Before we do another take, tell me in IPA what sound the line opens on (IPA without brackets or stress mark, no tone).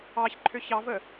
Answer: ɑ